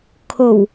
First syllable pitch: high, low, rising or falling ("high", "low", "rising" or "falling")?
low